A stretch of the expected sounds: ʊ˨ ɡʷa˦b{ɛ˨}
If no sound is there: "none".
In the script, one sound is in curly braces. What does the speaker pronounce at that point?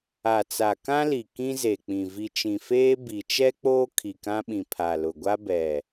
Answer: ɛ˨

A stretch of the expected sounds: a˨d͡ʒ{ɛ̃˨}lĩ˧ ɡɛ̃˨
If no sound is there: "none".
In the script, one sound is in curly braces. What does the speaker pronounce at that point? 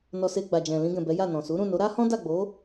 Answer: ɛ̃˨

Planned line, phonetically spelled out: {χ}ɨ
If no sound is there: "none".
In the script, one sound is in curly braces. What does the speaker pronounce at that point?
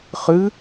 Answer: χ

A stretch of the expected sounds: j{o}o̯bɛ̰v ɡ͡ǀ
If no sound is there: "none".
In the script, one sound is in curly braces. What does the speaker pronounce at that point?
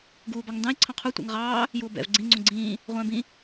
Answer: u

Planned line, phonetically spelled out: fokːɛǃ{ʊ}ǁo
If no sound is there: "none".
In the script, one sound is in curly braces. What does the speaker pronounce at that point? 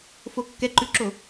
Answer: ʉ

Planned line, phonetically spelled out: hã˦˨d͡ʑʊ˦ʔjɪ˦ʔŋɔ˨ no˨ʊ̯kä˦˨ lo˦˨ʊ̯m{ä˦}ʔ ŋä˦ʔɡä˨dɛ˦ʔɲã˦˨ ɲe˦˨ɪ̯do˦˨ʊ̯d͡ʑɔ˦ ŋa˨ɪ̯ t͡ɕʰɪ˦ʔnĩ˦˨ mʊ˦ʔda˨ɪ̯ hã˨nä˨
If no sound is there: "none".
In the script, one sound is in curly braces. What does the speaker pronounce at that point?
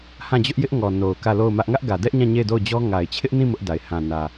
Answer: ä˦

